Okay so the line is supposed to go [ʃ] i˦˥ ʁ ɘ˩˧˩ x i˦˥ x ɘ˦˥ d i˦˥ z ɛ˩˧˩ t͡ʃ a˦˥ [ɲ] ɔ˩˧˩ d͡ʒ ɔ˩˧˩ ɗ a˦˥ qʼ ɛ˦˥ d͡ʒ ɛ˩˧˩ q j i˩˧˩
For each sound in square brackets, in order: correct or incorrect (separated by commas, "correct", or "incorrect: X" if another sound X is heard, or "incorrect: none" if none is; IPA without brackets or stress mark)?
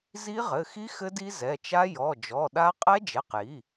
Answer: incorrect: z, incorrect: j